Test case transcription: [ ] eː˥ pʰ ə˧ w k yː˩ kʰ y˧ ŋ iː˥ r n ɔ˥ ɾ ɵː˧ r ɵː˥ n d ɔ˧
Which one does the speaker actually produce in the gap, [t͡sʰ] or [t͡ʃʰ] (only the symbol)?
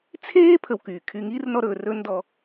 t͡sʰ